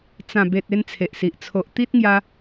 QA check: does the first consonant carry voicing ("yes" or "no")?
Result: no